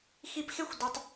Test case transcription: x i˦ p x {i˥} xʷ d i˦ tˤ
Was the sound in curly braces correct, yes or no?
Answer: no